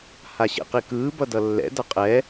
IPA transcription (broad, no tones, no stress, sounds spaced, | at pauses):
h a ɕ ḛ q i k ɯː b ʌ d ʌ lː ɛ̰ d ʌ qʼ ɛ